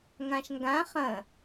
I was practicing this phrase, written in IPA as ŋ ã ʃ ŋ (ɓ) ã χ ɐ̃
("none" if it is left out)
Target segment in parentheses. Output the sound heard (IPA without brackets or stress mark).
ɡ